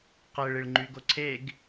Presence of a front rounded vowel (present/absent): present